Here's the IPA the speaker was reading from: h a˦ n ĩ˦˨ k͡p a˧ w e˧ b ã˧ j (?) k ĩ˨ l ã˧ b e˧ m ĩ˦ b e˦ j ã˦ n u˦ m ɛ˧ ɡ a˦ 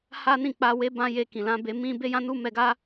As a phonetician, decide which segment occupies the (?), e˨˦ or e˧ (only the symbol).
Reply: e˧